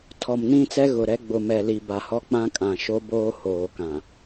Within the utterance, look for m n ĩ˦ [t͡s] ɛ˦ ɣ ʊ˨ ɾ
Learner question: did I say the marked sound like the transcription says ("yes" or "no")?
yes